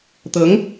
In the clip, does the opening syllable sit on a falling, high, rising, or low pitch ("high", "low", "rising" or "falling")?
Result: rising